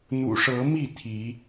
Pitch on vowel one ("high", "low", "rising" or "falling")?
low